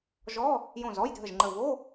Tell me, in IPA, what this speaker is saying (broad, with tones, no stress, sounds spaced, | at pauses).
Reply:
ʒ ɔ˧˥˧ | j õ˧˩ z ɔ˧˥˧ j dʱ ə˧˩ ʒ ŋ͡ǃ ə˧˩ v o˧˥˧